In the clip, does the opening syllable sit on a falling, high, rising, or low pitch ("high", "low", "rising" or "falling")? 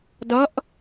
rising